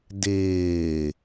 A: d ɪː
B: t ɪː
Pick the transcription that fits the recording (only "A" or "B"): A